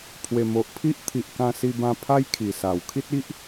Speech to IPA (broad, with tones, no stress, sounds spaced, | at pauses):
pʰ w e˨˩ m o˨ ʔ pʰ i˦ ʔ t̪ʰ i˨ ʔ k ã˧ s i˧ b ã˧ pʰ a˦ j kʰ i˨˩ s a˨˩ w kʰ i˦ t̚ i˦ ʔ